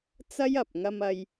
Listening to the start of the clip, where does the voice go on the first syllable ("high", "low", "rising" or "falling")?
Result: high